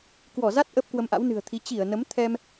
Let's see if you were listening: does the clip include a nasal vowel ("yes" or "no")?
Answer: no